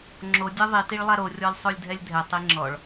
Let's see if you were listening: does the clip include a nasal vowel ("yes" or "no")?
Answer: no